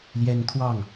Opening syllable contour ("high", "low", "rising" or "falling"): high